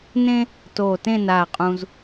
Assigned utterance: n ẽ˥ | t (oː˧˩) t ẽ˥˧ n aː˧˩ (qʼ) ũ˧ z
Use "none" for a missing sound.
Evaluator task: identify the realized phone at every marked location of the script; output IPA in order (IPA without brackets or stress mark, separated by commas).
oː˧˩, qʼ